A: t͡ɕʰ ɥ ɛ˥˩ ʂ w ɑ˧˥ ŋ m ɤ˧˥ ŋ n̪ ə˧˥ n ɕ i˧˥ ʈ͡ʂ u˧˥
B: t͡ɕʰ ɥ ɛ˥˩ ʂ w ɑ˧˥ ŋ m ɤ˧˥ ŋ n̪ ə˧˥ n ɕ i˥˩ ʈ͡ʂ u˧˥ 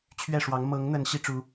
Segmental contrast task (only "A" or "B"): A